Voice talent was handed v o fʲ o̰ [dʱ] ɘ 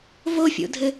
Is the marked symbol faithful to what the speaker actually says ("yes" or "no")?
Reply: yes